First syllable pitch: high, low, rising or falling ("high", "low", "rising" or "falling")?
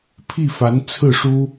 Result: falling